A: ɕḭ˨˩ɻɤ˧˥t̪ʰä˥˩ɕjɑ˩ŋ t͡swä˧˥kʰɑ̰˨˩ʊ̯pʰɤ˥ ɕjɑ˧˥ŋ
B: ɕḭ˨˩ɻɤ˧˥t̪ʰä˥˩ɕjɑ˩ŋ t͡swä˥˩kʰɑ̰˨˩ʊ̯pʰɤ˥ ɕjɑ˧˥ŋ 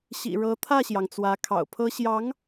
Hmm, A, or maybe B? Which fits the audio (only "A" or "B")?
A